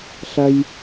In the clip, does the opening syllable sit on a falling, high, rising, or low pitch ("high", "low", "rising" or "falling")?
low